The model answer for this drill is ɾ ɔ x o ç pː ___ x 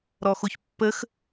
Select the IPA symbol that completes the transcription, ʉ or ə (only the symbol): ə